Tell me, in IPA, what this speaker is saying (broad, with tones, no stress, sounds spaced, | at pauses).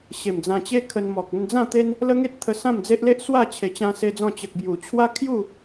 ɕ e˨˩ m d͡z ã˧ t͡ɕ e˦ kʰ ə˧ n m ɔ˨ k̚ ə˧ n d͡z ã˥˧ t̪ e˦ n | l ə˦ ŋ e˦ t̚ t̪ʰ ə˧ s ã˥˧ m d͡z e˦ ʔ l e˦ ʔ s w a˥˧ t͡ɕʰ e˧ t͡ɕ ã˦ s e˦ d͡z ɔ̃˥˧ t͡ɕ ə˨ k̚ b j u˨˩ t͡ɕʰ w a˦ kʰ j u˥˧